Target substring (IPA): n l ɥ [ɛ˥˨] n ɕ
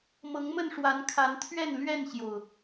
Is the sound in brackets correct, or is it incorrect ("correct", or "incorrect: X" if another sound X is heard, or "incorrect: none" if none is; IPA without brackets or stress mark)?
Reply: correct